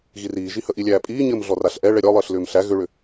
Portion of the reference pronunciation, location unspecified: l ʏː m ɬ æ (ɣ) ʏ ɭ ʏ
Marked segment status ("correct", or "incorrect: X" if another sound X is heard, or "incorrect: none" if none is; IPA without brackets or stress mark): correct